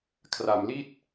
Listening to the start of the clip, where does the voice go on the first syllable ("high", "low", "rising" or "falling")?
low